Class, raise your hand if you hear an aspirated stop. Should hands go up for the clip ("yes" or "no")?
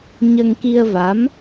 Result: no